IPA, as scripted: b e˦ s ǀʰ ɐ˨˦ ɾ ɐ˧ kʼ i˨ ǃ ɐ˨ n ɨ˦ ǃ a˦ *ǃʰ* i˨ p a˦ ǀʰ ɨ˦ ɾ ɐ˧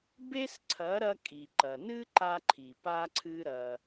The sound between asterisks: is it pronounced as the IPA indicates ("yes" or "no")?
yes